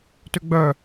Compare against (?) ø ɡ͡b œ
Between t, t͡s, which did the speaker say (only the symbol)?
t